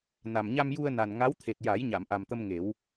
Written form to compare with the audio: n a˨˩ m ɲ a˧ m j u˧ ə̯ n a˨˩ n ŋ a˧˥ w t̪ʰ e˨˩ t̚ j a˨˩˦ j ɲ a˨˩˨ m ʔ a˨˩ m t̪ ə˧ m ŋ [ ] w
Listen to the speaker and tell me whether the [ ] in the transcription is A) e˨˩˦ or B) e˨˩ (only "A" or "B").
A